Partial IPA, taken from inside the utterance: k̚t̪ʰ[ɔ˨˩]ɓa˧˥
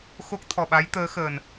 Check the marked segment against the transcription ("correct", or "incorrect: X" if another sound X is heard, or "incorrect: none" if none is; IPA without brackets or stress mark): correct